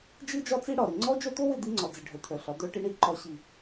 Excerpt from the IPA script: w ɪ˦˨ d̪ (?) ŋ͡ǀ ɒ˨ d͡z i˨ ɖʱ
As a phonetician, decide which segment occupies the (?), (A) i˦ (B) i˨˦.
A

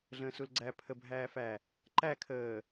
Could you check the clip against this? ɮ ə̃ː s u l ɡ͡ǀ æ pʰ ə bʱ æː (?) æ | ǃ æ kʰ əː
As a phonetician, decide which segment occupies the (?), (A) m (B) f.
B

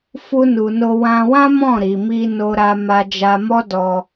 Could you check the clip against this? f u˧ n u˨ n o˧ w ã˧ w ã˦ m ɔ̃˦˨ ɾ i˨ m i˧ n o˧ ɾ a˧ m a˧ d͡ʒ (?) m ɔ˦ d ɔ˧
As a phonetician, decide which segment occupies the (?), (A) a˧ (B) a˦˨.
A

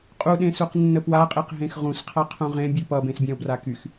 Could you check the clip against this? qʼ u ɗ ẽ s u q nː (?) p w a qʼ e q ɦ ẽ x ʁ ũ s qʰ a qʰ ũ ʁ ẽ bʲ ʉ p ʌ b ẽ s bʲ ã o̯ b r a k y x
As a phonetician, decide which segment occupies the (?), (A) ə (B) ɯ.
A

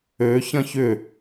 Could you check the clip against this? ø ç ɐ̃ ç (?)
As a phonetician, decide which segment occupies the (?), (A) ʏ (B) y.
A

